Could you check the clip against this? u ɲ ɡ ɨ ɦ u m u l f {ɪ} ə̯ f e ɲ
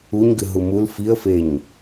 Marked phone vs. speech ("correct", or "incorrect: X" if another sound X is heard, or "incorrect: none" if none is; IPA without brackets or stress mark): incorrect: i